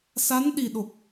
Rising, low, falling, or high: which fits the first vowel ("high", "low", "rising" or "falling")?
rising